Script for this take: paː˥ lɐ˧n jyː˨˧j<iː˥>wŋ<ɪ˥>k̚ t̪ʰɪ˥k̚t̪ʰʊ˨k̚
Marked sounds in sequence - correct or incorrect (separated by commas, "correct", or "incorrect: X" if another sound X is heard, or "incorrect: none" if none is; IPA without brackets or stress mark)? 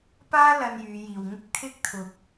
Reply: incorrect: iː˨, correct